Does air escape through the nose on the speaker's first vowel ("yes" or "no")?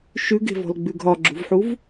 no